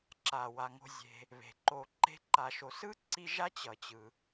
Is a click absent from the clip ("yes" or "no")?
no